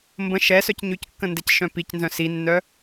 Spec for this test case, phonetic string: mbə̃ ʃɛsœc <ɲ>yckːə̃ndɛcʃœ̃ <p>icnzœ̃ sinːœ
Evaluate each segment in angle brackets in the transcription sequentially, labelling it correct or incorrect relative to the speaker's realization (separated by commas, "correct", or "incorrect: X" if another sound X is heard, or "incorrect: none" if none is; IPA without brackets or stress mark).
correct, correct